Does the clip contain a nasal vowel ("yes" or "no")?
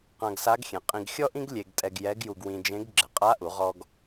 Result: yes